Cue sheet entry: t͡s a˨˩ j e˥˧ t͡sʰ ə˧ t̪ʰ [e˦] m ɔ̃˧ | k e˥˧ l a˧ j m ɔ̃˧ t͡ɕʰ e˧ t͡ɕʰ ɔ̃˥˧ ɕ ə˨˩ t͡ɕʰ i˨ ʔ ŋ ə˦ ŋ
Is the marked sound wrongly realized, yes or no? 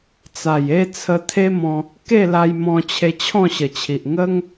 no